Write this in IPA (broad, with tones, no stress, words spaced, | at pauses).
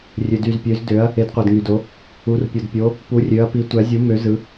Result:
rʲø˩dy˩zpʲø˩˧z dø˩˧ɐ̯ | e˩˧dqʷæ˩dŋy˩do˩˧ | u˩˧r pʲo˩dpʲo˩˧ | pu˩˧rʲø˩˧ɐ̯pi˩˧ tʷæ˩˧zʲu˩˧mø˩˧ zɯ˩˧